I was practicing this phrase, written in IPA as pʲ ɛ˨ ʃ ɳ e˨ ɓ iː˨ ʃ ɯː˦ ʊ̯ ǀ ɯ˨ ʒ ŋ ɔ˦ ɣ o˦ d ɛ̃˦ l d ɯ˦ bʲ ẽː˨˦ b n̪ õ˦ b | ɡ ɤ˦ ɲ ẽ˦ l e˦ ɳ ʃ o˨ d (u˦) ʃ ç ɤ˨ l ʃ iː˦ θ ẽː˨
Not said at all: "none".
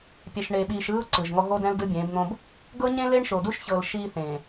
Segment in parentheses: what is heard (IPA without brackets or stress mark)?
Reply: u˦